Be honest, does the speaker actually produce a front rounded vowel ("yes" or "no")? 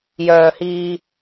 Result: yes